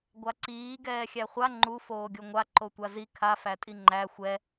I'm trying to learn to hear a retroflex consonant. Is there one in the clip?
no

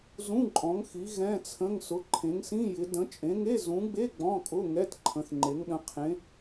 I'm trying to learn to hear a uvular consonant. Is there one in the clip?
yes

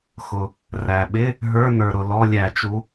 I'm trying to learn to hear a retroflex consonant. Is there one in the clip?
no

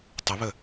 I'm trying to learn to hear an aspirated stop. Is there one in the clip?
no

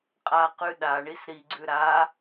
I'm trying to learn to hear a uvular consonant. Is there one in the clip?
yes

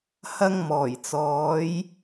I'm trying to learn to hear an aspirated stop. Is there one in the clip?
no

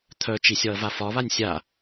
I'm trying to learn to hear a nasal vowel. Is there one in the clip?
no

